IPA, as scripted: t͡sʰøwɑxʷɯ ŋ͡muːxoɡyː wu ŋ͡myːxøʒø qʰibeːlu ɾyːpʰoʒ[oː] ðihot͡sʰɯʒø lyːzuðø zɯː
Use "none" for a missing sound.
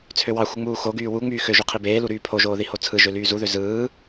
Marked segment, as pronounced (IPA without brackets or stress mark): oː